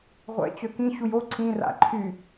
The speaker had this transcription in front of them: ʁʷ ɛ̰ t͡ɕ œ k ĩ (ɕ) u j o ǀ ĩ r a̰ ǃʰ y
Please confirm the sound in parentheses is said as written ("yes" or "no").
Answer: yes